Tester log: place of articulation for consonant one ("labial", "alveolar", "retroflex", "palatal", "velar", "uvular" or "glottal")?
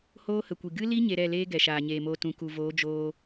glottal